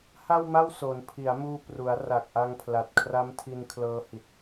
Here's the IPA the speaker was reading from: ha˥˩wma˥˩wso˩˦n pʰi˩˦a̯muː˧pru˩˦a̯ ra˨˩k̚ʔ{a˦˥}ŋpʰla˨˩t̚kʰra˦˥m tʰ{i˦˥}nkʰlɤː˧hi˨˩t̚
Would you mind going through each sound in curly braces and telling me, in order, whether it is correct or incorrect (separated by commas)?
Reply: incorrect, incorrect